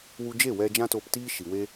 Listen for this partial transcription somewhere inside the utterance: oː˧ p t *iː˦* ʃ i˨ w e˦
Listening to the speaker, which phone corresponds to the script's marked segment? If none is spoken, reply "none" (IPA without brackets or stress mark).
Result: iː˦